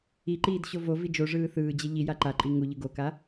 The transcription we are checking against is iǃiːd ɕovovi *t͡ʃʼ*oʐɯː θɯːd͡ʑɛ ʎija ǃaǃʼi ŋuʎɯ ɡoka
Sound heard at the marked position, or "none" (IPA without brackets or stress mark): d͡ʒ